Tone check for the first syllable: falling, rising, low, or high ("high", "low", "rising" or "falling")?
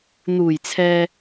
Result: low